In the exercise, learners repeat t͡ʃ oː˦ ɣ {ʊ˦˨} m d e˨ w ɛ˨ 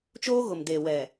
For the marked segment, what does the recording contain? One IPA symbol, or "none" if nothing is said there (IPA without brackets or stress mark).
ʊ˨